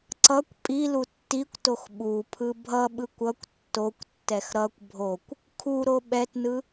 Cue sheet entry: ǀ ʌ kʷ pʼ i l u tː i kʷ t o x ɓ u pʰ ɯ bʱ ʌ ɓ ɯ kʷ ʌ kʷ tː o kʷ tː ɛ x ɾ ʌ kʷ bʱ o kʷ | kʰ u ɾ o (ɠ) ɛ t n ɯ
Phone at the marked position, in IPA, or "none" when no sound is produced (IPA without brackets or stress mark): ɓ